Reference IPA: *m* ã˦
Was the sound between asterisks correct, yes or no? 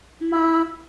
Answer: yes